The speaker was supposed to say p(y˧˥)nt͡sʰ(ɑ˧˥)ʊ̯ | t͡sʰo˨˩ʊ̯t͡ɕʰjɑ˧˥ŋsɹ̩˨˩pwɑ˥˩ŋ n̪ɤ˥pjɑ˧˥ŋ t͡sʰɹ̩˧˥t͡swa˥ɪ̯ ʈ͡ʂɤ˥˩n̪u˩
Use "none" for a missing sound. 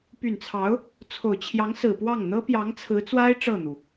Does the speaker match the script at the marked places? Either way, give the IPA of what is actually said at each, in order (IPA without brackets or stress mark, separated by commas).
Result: y˨˩, ɑ˧˥